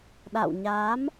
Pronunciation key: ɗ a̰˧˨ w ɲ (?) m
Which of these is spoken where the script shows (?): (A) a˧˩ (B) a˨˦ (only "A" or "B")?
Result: B